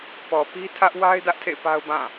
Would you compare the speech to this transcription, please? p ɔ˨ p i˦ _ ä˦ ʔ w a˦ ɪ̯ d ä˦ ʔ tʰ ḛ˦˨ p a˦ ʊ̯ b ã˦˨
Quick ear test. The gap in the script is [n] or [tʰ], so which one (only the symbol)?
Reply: tʰ